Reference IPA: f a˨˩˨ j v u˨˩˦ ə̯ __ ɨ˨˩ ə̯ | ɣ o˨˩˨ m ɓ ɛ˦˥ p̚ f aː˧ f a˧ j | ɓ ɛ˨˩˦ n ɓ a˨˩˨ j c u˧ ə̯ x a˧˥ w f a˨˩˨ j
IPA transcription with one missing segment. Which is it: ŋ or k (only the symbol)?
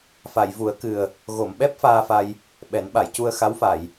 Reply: k